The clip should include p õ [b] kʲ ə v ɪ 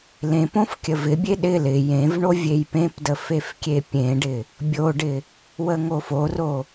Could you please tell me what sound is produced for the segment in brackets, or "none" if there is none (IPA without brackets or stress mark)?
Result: f